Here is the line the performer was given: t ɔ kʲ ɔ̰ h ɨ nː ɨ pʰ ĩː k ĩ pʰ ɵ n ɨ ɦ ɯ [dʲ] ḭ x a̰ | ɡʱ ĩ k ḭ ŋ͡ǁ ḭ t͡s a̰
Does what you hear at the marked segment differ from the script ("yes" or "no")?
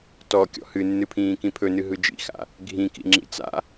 yes